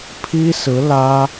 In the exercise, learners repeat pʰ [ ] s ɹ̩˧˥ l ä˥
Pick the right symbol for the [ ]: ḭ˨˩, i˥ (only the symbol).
i˥